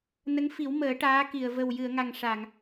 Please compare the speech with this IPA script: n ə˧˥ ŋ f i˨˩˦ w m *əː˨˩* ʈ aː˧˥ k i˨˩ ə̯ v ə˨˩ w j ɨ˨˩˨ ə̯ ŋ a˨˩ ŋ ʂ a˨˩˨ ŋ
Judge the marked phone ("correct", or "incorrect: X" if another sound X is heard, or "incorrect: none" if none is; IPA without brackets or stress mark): incorrect: əː˨˩˦